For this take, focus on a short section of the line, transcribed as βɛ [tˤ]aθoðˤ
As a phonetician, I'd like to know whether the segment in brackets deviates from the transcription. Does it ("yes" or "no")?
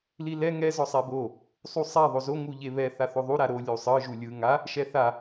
yes